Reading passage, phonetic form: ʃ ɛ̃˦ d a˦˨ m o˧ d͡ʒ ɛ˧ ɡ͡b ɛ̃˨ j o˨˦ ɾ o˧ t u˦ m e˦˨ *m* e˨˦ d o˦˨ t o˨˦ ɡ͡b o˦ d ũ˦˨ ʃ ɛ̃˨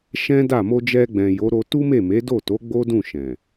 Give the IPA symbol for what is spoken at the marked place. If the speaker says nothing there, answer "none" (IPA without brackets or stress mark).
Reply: m